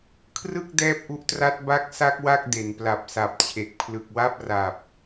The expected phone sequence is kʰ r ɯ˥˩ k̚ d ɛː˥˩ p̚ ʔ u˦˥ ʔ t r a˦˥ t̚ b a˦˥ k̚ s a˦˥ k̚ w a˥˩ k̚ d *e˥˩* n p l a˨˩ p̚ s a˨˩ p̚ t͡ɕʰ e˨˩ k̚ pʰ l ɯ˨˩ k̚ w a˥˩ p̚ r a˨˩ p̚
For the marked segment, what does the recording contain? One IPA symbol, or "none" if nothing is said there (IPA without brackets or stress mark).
e˩˦